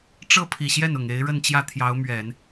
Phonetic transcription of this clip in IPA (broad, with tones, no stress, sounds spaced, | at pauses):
ʈ͡ʂ ɤ˥ pʰ i˨˩ ɕ j ɛ˥˩ n ʊ˨˩ ŋ e˧˥ ɪ̯ ɻ ə˥˧ n t͡ɕ j ä˥˩ t̪ʰ j ɑ˧˥ ʊ̯ m ɥ ɛ˨˩˦ n